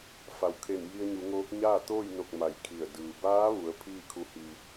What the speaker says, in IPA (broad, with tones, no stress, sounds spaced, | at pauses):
f a˩ w kʰ e˧˩ n j i˧ ə̯ ɲ u˩˧ ŋ oː˧˥ k̚ ɲ aː˥˨ t̪ oː˥˨ j n o˧˩ k̚ m a˧˩ j kʰ i˧˩ ə̯ d ɯː˩ b aː˧˥ ʋ u˩˧ ə̯ pʰ iː˥˨ kʰ u˧˥ h i˧